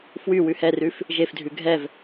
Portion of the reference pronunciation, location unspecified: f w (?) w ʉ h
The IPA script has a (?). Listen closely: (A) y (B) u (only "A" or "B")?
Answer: A